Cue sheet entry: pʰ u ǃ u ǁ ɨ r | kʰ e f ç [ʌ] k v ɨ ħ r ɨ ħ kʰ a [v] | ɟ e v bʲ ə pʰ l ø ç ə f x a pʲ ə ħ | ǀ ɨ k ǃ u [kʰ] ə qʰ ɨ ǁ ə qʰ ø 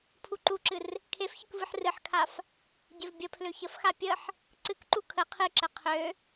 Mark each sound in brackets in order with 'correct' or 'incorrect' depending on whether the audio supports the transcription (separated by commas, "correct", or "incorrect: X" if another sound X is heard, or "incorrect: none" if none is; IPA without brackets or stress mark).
incorrect: ə, incorrect: f, correct